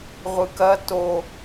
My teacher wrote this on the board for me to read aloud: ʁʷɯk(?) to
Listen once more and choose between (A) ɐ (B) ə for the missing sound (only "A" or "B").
A